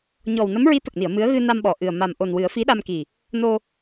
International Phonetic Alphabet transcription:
ɲ ɔ˨˩ w n ə˧˥ m ɹ i˧˥ t̪ ə˨˩ k̚ n i˨˩˨ ə̯ m ɨ˧˥ ə̯ ɣ ɨ˧ n a˧ m ɓ ɔ˨˩ ʔ ɨ˨˩ ə̯ m a˨˩ m ʔ o˨˩ n w ɨ˨˩˦ ə̯ f i˧˥ ɗ a˧ m k i˨˩ | n o˧

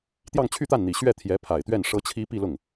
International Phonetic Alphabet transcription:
t̪ j ɑ˥˧ ŋ t͡ɕʰ y˥˧ t̪ a˥˩ n n̪ i˨˩ ɕ ɥ ɛ˥˩ t̪ʰ j ɛ˧˥ pʰ a˨˩ ɪ̯ t̪ ɥ ɛ˥˩ n ʂ ɤ˥ t͡ɕʰ i˥ p i˥˧ l ʊ˥˩ ŋ

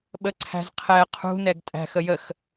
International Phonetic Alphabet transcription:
ɓ ə ǀʰ æ̤ z qʰ ɛ qʰ ṳ n ɛ ɡ tʼ æ̤ x ə j ə x

